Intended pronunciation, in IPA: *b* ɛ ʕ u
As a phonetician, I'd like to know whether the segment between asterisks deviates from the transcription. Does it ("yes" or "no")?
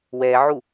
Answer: yes